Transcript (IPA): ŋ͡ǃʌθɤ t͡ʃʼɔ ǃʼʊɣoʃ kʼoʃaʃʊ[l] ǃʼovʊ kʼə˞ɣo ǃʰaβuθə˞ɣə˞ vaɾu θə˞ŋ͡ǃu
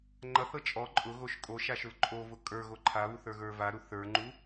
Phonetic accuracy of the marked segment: correct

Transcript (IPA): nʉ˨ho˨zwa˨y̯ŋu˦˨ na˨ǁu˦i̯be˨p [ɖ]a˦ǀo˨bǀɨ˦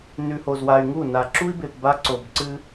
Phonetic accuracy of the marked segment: incorrect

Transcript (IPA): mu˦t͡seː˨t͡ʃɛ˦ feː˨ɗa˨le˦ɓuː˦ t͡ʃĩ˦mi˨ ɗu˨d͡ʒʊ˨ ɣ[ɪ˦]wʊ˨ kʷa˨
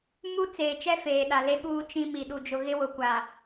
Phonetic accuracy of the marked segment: correct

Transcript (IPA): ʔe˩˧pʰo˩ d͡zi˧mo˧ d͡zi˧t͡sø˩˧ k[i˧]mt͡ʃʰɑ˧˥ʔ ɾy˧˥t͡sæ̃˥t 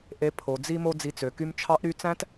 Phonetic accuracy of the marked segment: incorrect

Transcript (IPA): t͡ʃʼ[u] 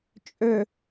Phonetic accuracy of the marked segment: incorrect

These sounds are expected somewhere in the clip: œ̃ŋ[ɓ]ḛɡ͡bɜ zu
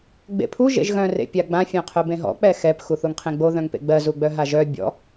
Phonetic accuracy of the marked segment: incorrect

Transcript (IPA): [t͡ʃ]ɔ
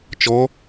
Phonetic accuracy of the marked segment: correct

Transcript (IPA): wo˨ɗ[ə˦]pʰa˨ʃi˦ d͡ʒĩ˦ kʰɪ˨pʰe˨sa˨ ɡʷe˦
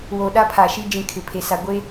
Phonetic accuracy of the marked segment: incorrect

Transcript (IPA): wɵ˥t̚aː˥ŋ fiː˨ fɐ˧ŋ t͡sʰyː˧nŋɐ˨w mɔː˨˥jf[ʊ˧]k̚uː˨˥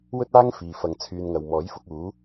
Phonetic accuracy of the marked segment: correct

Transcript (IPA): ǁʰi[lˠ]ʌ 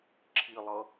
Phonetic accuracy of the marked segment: correct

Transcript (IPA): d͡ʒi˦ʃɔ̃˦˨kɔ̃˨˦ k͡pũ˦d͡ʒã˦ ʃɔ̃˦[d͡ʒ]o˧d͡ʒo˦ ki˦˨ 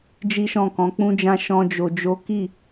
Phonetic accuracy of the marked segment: correct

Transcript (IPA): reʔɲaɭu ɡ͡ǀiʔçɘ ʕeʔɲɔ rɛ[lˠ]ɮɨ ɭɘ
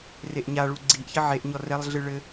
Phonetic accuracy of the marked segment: correct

